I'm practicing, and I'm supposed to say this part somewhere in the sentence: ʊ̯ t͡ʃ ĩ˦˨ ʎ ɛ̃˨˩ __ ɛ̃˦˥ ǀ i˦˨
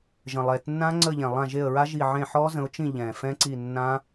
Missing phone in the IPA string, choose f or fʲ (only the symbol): f